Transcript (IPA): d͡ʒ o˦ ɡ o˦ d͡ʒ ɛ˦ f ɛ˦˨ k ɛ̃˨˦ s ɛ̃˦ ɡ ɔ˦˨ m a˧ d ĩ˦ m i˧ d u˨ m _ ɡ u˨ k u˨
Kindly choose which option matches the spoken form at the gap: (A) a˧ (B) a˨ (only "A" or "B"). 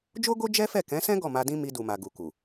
B